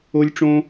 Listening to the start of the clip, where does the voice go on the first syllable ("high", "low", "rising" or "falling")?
high